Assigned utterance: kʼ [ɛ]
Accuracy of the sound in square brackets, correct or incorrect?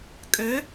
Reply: incorrect: ø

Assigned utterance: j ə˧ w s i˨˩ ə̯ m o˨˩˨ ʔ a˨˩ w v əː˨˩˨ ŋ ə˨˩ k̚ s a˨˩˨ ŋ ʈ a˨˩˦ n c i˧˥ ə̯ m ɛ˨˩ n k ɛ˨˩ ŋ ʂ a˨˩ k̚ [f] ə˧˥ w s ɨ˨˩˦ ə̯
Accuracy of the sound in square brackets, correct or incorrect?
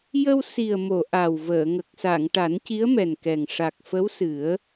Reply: correct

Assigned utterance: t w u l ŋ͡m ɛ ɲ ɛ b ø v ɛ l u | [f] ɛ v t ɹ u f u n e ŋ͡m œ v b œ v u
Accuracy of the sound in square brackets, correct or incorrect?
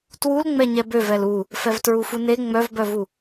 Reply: correct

